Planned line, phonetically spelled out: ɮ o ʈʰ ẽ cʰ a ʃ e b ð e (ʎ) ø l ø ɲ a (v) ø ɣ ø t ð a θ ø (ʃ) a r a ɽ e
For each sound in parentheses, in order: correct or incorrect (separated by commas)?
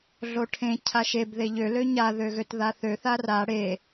correct, incorrect, incorrect